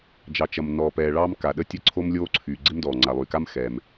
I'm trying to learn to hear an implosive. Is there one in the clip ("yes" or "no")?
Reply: yes